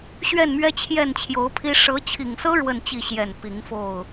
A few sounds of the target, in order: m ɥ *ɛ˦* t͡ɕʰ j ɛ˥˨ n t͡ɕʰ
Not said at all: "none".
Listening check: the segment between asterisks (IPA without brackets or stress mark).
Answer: ɛ˦